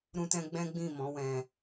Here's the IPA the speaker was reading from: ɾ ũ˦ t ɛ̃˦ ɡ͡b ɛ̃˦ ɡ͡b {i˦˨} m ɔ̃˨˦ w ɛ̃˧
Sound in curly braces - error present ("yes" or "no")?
yes